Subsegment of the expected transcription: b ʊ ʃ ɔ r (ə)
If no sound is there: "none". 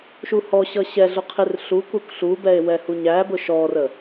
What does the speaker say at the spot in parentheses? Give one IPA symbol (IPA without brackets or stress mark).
ə